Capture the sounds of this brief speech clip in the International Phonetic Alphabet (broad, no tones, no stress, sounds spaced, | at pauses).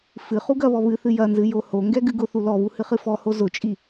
f ɨ χ u ɡ ɐ β ɔ β ɨ θ ɨ j ɐ n z ɨ j o h o ŋ ɡ ɛ ɡ ɨ ɡ ʊ θ u l ɔ β u h ɨ χ ɨ f ɔ h o z ʊ t͡ʃʼ i